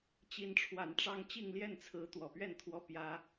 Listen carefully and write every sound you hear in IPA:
t͡ɕ i˨˦ n ʈ͡ʂʰ w a˨˩ n ʈ͡ʂ ɑ˦ ŋ t͡ɕ i˥˨ ŋ l j ɛ˥˨ n t͡sʰ ɹ̩˨˦ t̪ w ɔ˨˩ p ɥ ɛ˥˨ n t̪ʰ w ɔ˦ p j ä˦

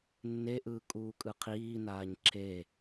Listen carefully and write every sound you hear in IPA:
nː e ʔ ɯː kʼ uː kʼ ɯ qʰ iː n aː ɲ ǁʰ e

